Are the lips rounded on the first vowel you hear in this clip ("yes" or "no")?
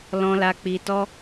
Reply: yes